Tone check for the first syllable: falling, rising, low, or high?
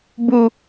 high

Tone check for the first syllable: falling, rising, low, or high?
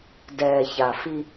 low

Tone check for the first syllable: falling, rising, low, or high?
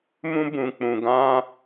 high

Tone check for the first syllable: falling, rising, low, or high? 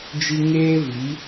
high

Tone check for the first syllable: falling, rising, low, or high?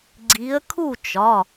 rising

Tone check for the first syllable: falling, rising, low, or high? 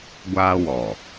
high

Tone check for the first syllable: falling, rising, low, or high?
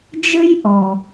high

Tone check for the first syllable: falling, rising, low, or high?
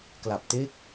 low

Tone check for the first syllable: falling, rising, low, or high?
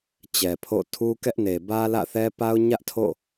low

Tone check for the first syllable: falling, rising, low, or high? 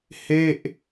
falling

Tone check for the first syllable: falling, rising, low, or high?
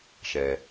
low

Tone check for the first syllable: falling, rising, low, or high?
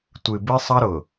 low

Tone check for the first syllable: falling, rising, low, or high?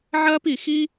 high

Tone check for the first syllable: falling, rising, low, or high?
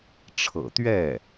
low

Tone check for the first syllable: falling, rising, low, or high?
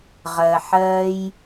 low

